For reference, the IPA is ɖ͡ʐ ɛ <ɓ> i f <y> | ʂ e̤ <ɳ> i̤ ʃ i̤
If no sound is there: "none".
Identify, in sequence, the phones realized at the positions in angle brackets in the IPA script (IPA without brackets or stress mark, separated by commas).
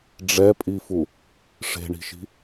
pʼ, u, ɳ